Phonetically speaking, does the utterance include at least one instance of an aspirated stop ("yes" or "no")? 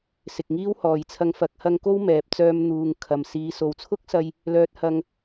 yes